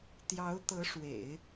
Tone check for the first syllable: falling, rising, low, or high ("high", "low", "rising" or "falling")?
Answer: rising